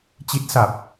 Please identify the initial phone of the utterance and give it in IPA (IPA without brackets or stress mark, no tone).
t͡ɕ